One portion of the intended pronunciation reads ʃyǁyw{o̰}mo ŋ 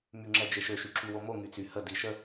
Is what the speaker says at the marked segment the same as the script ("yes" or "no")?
no